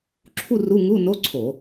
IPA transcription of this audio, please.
ǁʰ u˥˧ r u˧˥˧ ŋ u˧˥˧ n o˧˥˧ ǀʰ o˧˩˧

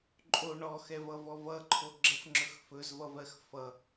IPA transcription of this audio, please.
ǃʼ o ɳ ɔ x ɛ v ʌ v ɔ v ʌ ǃʰ o ɡ͡ǁ ə f ŋ͡ǁ ɵ x f ɵ z v ʌ v ɜ x f ʌ

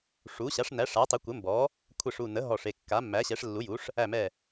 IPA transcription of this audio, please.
ʂ u˩˥ ɕ a˩˥ ʂ n æ˩˥ ʂ a˩˥ tˤ ɘ˩˥ kʷ ɘ˩˥ m b ɔ˩˥ | kʷʰ ɘ˧˩ ʂ u˧˩ n ə˩˥ ɦ ɔ˧˩ ʂ e˧˩ kː a˩˥ mː æ˩˥ ɕ ɛ˩˥ ʂ lː u˩˥ j u˩˥ ʂ | æ˧˩ m ɛ˧˩

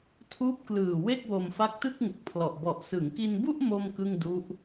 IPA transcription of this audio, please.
tʰ uː˦˥ p̚ k l ɯː˨˩ w e˥˩ k̚ w o˧ m f a˦˥ k̚ t ɯ˥˩ k̚ ŋ u˨˩ k̚ pʰ l ɔ˨˩ ʔ b ɔ˨˩ ʔ s ɯ˩˦ ŋ k i˧ n b u˥˩ ʔ m o˥˩ m k ɯ˥˩ ŋ d u˦˥ ʔ

